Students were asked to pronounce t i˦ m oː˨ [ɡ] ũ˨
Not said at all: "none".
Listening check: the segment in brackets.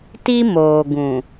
ɡ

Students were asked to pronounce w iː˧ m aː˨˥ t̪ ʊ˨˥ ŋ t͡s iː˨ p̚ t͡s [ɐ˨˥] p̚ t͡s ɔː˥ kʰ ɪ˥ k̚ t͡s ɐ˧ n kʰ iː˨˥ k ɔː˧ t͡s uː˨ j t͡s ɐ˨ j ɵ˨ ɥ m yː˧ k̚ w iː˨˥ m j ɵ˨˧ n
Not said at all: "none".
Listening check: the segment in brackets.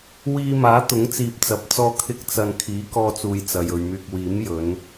ɐ˨˥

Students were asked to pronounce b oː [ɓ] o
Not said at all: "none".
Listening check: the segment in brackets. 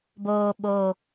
ɓ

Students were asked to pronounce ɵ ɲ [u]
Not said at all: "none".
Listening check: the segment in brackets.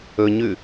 ʉ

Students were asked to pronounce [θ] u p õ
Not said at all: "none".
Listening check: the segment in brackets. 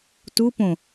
t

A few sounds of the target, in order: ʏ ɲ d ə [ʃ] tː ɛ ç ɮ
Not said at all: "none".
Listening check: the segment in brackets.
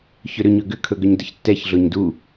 ç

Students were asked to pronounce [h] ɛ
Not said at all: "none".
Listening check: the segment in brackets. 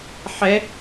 ħ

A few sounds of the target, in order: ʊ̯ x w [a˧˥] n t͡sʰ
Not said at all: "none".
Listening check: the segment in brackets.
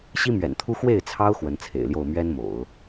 ə˧˥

